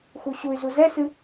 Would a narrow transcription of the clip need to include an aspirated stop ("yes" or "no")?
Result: no